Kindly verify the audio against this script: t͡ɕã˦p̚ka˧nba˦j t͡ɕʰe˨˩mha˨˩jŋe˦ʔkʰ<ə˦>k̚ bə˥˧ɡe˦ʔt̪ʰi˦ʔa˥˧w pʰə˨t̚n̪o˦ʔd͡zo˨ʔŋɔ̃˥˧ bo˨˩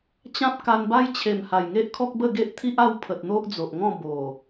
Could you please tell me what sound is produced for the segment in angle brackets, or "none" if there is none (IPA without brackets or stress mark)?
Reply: ɔ˦